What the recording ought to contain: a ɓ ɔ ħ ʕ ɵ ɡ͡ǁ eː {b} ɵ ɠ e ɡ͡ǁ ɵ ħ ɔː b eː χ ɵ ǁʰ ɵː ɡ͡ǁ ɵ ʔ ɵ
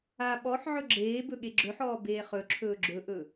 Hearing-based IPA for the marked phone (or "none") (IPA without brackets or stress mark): b